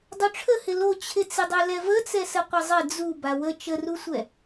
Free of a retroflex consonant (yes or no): no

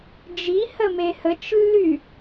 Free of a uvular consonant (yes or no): yes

